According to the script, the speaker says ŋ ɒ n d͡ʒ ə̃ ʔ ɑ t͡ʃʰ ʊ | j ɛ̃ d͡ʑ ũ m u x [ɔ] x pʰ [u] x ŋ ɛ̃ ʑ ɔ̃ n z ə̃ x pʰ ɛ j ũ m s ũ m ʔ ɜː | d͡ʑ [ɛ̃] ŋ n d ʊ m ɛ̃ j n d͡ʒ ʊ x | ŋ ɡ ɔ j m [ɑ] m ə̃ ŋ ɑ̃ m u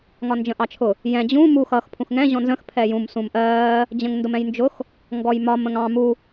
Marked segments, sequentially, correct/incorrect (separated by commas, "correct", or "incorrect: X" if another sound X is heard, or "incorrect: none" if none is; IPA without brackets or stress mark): incorrect: ʌ, incorrect: ũ, incorrect: ə̃, incorrect: ɒ